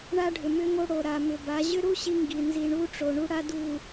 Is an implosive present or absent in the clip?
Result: absent